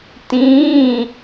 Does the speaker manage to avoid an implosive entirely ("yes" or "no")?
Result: yes